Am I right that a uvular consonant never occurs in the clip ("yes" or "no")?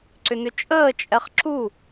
no